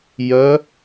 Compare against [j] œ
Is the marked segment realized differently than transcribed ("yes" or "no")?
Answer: no